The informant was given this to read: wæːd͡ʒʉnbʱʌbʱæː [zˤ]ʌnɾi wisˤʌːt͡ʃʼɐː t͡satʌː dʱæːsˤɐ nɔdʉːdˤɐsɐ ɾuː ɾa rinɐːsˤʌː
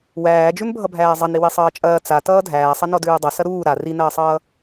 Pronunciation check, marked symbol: correct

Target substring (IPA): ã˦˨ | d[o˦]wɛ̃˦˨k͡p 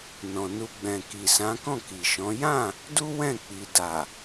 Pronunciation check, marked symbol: incorrect: u˦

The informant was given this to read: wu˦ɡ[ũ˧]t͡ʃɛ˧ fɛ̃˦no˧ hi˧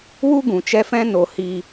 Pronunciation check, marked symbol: incorrect: ũ˨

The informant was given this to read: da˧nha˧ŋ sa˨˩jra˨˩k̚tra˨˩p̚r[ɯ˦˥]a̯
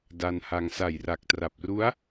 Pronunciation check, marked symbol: incorrect: u˦˥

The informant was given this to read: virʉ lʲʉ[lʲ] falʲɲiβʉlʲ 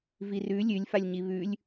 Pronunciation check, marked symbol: correct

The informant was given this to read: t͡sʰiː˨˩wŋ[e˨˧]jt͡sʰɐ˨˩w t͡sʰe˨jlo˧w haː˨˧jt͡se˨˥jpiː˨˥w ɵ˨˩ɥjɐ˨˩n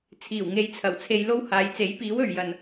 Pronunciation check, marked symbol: correct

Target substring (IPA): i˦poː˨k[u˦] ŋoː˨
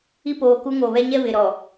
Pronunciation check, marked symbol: correct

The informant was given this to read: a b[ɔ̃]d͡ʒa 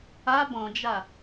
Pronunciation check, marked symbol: correct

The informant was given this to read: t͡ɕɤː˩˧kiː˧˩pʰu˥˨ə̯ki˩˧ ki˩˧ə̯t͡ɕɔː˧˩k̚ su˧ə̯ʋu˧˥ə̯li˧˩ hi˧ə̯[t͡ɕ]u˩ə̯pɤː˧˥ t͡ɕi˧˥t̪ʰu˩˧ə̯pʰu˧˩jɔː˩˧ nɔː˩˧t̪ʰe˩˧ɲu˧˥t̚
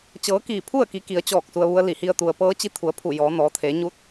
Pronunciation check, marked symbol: incorrect: t̪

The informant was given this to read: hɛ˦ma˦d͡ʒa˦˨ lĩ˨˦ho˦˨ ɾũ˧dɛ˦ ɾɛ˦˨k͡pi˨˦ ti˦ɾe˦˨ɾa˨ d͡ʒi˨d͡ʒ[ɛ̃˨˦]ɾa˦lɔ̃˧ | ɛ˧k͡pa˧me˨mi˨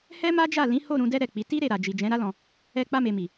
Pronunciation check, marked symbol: correct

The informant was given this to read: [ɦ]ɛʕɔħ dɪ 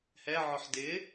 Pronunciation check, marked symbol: incorrect: h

